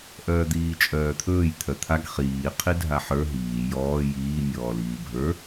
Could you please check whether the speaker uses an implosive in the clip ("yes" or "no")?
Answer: no